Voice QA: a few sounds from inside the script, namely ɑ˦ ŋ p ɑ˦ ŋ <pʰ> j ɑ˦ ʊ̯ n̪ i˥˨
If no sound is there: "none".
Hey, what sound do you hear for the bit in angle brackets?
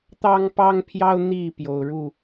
pʰ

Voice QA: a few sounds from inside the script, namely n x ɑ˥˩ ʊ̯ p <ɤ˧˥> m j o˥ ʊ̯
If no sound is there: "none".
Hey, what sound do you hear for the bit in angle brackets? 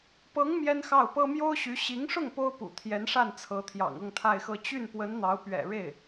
ɤ˥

